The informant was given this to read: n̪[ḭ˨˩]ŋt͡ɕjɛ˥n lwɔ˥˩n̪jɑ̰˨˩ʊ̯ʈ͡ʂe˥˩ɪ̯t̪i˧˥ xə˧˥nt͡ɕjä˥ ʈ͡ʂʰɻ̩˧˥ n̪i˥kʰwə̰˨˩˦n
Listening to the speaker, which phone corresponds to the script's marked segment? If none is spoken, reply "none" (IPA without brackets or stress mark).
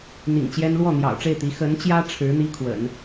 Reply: ḭ˨˩